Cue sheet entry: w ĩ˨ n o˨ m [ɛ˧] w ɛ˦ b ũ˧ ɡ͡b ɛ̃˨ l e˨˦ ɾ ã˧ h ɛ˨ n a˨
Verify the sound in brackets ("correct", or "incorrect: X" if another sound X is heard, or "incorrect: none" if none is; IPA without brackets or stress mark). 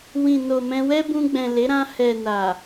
incorrect: ɛ̃˧